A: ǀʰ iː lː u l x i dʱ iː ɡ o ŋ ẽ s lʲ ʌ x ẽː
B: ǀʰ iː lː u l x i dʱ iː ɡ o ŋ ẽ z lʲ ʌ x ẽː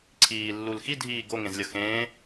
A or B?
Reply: B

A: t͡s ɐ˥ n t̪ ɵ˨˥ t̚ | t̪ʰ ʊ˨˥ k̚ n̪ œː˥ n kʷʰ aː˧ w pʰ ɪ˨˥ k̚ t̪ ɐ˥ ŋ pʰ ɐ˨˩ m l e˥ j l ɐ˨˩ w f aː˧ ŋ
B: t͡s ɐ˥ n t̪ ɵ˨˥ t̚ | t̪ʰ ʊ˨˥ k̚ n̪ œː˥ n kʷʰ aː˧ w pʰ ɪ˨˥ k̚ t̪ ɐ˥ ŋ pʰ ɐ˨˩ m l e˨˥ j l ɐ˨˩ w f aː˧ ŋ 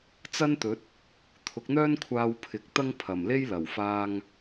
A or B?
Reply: A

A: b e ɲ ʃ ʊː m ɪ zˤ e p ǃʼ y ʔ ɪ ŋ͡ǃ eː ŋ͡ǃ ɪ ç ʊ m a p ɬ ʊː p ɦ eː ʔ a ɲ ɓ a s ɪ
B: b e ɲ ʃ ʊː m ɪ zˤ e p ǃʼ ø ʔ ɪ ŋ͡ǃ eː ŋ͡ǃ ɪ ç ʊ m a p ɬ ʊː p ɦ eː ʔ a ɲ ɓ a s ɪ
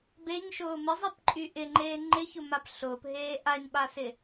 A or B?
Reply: A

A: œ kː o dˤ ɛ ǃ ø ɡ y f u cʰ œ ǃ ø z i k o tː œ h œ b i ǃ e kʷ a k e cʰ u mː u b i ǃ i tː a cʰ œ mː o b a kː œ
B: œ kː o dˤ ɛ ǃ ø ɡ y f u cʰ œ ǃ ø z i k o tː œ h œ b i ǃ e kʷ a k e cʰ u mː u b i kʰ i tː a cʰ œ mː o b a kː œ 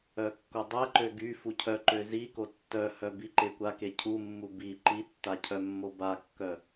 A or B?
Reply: A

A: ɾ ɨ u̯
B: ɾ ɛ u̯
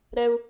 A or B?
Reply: B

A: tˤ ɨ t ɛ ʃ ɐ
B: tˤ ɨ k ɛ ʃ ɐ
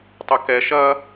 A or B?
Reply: B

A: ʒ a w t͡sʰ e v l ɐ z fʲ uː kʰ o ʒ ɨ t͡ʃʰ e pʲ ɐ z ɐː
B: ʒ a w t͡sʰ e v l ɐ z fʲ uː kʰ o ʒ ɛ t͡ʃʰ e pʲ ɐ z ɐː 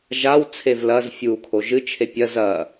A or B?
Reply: A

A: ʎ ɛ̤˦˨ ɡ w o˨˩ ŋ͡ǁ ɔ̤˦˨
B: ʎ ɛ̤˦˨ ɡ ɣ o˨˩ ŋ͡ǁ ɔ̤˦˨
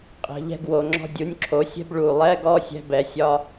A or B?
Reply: A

